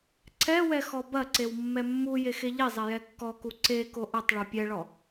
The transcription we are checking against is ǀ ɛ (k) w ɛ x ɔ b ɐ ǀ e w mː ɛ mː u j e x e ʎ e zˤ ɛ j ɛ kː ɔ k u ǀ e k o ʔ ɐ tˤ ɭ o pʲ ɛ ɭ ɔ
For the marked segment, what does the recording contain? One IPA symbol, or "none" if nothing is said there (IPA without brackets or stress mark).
none